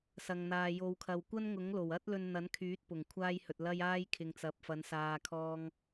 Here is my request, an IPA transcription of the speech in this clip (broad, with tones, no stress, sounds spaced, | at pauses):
s ɐ˨ ŋ n̪ aː˨ j o˨˧ w kʰ ɐ˨ w kʷ ɐ˥ n ŋ ʊ˨˥ ŋ l o˨˩ w ɐ˥ t̚ l ɵ˧ n n̪ ɐ˨˥ n kʰ yː˨˥ t̚ p ʊ˨˩ ŋ kʷʰ aː˥ j h ɵ˨ t̚ l ɐ˥ j aː˥ j kʰ ɪ˨ ŋ t͡s ɐ˨˥ p̚ f ɐ˨˥ n s aː˨ kʰ ɔː˧ ŋ